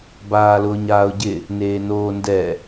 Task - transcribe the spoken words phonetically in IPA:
baːlʊːɲaːʊ̯ɟɪ | neːnoːndɛ

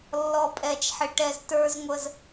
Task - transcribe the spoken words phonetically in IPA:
lːɔ˨pʼɛ˨t͡ʃħɪ˨ ʈɛ˧ztə˞˦zŋʷə˦z

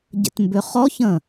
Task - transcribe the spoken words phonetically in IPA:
ɟə̰tmbʏχɔçə̃

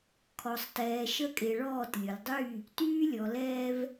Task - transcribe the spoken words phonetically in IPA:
kʰɔ˨sˤtɛː˨ ʃə˦kʼe˨ɭɔː˦˨t lʲʊ˨ldˤy˦˨ | tyː˦lʲɔ˨lɛː˦v

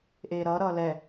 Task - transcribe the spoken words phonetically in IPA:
ʔeːɾʌːɾʌː lɛ

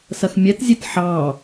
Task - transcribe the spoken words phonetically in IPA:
sɐxmʲɛtzʲet ħɑ

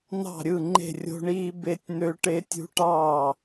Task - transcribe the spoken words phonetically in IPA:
n̪ɑ̤˥˨ɾʲɯ˥˨ ŋ͡ǃe̤˥˨rʲo̤˦˥ɳiː˦˥ be˦˥tʲn̪ø˦˥ ʈe˦˥tʲṳ˦˥ʈɑː˥˨

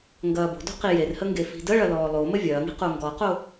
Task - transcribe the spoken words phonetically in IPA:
ŋɡɐːbo̤do̤ qijerhə ŋɡefi̤dəɭɐ lɔːlˠomə vʲɐːŋi̤ qoŋɡɔqo

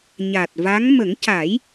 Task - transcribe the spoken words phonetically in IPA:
ɲa˨˩t̚va˧˥ŋ mə˨˩˦ŋca˨˩˦j

